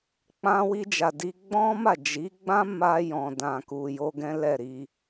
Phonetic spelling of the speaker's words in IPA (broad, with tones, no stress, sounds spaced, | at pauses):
k͡p ã˧ w i˧ d͡ʒ a˨ d i˧ ɡ͡b ɔ̃˦ m a˦˨ d͡ʒ i˨˦ ɡ͡b ã˦ m a˧ j ɔ̃˨ d ã˨ k u˨ j o˧ ɡ ɛ̃˦ l ɛ˦˨ ɾ i˧